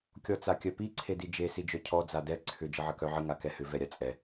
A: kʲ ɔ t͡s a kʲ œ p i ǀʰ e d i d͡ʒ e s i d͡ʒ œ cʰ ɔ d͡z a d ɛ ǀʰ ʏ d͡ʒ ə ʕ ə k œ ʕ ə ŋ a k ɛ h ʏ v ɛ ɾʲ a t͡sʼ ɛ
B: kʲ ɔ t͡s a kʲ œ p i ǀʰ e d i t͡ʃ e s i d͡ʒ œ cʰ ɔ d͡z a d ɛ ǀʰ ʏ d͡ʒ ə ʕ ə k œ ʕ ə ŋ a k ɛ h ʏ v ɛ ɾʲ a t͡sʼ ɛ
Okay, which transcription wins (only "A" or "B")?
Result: A